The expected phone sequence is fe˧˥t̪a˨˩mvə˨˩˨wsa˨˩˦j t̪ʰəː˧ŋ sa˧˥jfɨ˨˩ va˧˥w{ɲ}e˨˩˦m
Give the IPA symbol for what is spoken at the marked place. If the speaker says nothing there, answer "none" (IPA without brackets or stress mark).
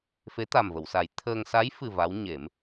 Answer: ɲ